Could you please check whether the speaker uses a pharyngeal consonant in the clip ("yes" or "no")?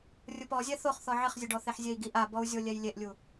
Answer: yes